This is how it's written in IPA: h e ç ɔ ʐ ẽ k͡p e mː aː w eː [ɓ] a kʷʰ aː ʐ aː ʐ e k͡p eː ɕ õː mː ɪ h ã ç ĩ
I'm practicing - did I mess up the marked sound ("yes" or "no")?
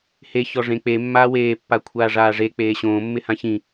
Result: yes